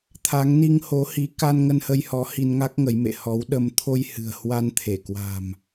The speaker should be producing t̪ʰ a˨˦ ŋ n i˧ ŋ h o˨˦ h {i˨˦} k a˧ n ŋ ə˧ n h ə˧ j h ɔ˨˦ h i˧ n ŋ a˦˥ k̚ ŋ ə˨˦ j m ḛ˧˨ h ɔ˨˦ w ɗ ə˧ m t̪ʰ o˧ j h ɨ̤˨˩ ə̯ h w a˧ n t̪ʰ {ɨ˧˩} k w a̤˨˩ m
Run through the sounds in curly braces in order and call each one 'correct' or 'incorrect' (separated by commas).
correct, incorrect